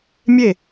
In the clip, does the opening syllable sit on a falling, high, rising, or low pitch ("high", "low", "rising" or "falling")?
falling